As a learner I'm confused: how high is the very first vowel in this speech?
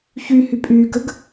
high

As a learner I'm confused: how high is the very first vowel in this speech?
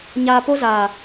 low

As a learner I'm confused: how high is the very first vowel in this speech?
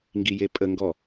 high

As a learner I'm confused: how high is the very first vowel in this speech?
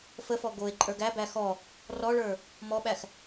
mid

